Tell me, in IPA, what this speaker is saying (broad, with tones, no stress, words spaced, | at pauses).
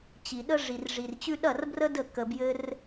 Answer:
t͡ɕi˨ɗə˧ ʐi˨rʐi˨rt͡ɕʉ˧ ɗɐ˦˨rbrə˦də˦˨ kə˧ bjɘ˦r